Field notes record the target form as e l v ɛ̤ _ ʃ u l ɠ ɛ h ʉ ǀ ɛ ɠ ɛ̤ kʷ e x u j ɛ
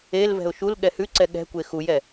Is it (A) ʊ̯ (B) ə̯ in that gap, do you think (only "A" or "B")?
A